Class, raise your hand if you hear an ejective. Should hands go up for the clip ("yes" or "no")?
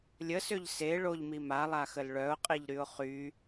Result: yes